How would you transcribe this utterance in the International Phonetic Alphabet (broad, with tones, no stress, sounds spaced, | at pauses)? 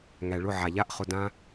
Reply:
ŋ æ˨ ɭ ʊ˦˨ ʕ a˨ ʎ a˦ ʔ χ ʊ˧ d ã˦